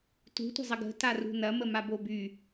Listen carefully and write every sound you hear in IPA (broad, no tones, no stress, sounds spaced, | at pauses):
t ṳ tʷ ə̤ zˤ ɐ ɡ ə̤ t a r ṳ n ɐ m ə m a b o b y